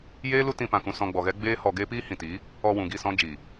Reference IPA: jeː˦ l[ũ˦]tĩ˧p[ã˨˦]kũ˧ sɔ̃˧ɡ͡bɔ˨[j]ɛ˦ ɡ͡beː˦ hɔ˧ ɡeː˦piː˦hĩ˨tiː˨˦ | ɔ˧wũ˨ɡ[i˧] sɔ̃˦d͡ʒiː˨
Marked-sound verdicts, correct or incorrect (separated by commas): incorrect, incorrect, incorrect, incorrect